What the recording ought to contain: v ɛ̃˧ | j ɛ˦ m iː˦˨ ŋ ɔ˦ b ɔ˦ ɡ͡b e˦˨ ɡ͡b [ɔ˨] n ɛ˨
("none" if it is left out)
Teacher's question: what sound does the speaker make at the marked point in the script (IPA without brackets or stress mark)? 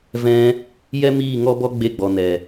ɔ˨